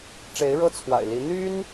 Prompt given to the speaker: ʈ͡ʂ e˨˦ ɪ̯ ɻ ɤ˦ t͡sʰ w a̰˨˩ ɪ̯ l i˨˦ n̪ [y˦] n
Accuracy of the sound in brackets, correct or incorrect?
correct